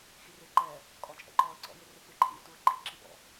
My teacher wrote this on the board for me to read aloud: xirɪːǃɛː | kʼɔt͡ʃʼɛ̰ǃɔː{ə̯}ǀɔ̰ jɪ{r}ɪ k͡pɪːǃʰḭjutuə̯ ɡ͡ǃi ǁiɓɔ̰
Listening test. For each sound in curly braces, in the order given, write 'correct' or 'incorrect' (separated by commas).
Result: correct, correct